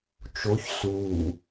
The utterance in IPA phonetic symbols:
t͡ʃoç suː

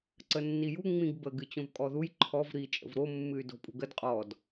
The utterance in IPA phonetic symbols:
ǀənːiju ŋ͡mĩɡbəɡ ɨt͡ɕõvkʼɔðuj ǃʰɔv ɾi t͡ʃʼə̰vɾo mːɨy̯do̤pʼṳɡəd qʼɔd

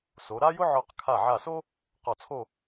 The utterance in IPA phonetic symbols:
so˩˧ɾa˥jʊ˥ʕɔ˧˩q kʰa˧˩ʕa˧˩so˥ | qɔ˧˩t͡sʰo˥˧

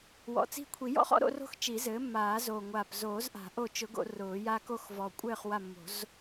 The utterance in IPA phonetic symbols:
wɔ̰˨˩t͡si̤˦˨kʷʰi˨˩˦ jɔ̰˥χɔ̰˥ ɾo̰˥ro̤˥x t͡ʃi˨˩˦zɘː˩˥ mːaː˨˩˦zoː˨˩ŋʷaː˨˩p zoː˨˩˦zʔa̤˨˩˦ ʔo˦˨ t͡ʃʊ˨˩˦ ɡo̰˨˩˦rʊː˨˩˦ja˥ko˥x vɔ˨˩kʷʼɘː˦˨χ wa˦˨mːo̤˨˩˦z

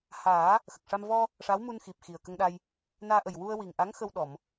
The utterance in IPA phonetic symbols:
haː˨˩˦ | xə˨˩k̚ʂa˧m vɔ˧ | ʂa˧˥wmu˧n xi˨˩p̚xi˨˩ə̯kə˧ŋɗa˧j | naː˧ʔə˨˩j wu˧ə̯wi˨˩ŋʔa˧˥ŋ xə˧wɗɔ˨˩˨m

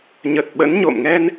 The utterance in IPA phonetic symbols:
ɲə˨˩t̚ɓə̰˧˥nɲo̰˧˨m ŋɛ˧n

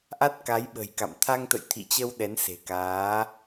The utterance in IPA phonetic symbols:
ʔa˦˥t̚ka˨˦jɓə̤˨˩jka̰˧˨m t̪ʰa˧ŋt̪ə̰˧˨jt̪ʰḭ˧˨t͡ɕə˧w ɗɛ˨˦nse̤˨˩kaː˨˦

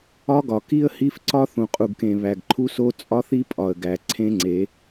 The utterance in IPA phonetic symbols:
ɒ˦ɡɒ˨ ki˦ə̯hi˦fǀɒ˦ θũ˨qʼu˨ɡkẽ˨ βæ˨ɡǃʰu˦so˦ t͡sʼɒ˦θi˦pʼɒ˨ə̯ɡæ˨ ǀʰẽ˦ŋ͡ǀe˨˦

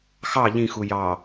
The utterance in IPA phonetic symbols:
xɑ ʎĩxu jɑ

